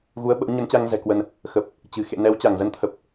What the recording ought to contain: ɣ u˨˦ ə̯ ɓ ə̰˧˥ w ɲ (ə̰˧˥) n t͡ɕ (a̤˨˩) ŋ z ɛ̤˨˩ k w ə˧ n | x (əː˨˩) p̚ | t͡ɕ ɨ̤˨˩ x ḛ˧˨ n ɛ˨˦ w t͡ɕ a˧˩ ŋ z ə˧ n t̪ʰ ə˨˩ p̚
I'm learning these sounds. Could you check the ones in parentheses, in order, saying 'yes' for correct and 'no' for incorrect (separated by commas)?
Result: no, no, no